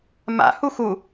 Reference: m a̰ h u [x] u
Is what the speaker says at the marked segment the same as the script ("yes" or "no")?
yes